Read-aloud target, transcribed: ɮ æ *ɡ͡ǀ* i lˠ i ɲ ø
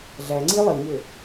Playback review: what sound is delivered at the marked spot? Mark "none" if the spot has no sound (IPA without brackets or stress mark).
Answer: ŋ͡ǀ